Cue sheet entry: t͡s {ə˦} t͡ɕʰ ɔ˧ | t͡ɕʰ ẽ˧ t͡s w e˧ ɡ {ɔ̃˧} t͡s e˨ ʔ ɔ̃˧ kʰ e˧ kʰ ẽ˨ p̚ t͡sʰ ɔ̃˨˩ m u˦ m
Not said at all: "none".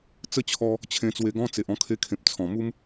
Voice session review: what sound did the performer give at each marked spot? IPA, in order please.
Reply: ə˦, ɔ̃˦

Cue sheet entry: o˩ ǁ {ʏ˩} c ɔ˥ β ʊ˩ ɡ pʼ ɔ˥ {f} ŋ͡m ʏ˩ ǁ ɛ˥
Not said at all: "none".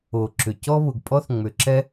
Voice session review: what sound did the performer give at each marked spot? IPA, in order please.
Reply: ʏ˩, θ

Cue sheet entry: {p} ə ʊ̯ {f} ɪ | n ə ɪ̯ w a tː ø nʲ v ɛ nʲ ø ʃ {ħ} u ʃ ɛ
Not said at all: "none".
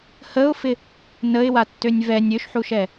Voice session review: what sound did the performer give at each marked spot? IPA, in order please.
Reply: h, f, ħ

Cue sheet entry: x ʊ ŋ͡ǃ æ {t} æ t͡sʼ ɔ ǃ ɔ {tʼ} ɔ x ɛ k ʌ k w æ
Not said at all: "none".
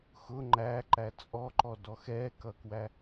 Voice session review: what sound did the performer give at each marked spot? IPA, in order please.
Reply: ǃ, d

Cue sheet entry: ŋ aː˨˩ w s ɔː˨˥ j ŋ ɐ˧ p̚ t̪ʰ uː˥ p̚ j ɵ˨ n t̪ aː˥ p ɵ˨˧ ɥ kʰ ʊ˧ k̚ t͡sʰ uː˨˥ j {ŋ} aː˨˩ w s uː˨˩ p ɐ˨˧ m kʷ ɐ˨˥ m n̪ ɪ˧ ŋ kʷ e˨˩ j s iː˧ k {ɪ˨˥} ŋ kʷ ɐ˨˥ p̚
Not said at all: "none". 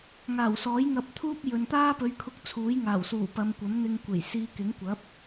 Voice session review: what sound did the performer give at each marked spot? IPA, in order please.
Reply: ŋ, ɪ˨˥

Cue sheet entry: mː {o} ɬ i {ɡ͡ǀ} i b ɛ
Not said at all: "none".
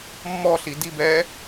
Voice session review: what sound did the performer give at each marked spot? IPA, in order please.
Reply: ɔ, d

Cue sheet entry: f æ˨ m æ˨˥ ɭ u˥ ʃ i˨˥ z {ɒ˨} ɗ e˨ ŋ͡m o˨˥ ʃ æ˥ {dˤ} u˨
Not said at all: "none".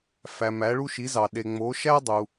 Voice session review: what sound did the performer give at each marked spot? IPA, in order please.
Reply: ɑ˨, dˤ

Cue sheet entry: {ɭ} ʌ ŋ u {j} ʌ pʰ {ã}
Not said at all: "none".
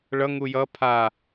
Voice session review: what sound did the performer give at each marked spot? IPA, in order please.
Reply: ɭ, j, a

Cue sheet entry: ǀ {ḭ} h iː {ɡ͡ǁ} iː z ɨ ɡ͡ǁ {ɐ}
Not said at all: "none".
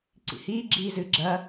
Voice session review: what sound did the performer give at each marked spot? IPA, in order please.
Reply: ḭ, ɡ͡ǁ, ɐ

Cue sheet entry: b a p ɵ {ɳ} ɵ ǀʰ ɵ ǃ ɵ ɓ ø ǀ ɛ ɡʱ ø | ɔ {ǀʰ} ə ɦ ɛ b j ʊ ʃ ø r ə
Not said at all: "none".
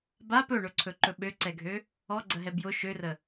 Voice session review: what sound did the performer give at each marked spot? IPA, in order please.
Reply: ɳ, ɡ͡ǀ

